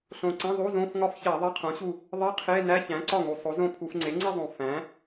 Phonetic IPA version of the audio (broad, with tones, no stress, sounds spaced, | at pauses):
ɬ õ˨˩ ǀ ẽ˧˥˧ ðˤ u˧˥˧ z õ˧˥˧ f ŋ ɒ˥˧ f ç æ˧˩˧ ðˤ e˧˥˧ qʰ õ˩˥ ɕ u˥˩ | ðˤ i˧˥˧ qʰ e˧˥˧ n æ˧˥˧ ç æ̃˩˥ ǀ ɒ˥˩ ŋ u˨˩ sˤ o˩˥ z õ˥˩ pʰ u˧˩˧ f ŋ͡ǀ e˩˥ ŋ͡ǀ i˥˧ zˤ õ˨˩ f æ̃˩˥